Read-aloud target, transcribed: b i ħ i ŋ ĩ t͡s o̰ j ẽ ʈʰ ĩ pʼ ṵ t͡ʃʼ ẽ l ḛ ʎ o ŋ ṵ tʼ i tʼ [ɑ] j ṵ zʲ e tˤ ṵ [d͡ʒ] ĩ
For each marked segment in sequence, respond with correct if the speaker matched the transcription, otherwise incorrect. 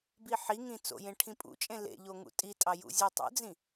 correct, incorrect: d͡z

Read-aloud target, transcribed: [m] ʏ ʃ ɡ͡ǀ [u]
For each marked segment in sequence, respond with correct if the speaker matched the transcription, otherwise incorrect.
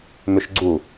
correct, correct

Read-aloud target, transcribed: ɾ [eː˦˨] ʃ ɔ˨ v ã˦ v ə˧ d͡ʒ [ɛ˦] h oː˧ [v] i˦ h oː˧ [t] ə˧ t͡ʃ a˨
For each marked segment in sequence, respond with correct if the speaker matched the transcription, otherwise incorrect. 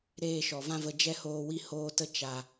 correct, correct, incorrect: w, correct

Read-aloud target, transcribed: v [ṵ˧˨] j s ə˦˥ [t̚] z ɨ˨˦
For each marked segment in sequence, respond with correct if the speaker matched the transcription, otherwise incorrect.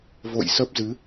incorrect: o̰˧˨, incorrect: p̚

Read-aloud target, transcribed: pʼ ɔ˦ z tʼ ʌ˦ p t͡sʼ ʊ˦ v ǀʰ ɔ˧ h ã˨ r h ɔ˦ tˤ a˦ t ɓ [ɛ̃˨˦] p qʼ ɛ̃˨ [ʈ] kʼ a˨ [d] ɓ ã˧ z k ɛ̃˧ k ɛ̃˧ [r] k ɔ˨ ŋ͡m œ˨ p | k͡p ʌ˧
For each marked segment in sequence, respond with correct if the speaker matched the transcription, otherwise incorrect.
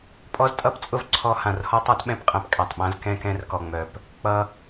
incorrect: ɛ̃˧, incorrect: p, incorrect: tˤ, correct

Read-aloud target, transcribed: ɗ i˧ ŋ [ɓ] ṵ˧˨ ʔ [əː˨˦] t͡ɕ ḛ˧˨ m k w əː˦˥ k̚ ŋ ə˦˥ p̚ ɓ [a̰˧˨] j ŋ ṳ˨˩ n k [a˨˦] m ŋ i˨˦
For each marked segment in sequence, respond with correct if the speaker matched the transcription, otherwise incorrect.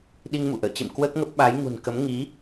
incorrect: m, incorrect: ə̰ː˧˨, incorrect: a˨˦, incorrect: ə˨˦

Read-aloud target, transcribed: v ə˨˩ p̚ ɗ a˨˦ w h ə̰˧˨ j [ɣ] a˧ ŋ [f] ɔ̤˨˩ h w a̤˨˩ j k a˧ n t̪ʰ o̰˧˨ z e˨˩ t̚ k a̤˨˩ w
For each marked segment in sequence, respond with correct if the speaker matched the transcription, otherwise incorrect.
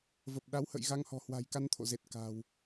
correct, incorrect: h

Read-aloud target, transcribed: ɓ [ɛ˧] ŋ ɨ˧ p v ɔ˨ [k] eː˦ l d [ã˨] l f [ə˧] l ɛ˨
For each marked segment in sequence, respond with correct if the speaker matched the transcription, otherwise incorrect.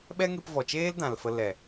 incorrect: ɛ˦, incorrect: t͡ʃ, correct, correct

